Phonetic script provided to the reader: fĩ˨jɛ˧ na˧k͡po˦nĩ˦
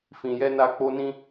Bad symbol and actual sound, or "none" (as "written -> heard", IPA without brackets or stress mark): none